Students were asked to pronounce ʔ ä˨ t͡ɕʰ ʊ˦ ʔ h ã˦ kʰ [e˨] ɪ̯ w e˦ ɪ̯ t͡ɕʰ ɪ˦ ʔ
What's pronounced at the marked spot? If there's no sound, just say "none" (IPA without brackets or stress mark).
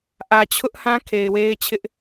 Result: e˨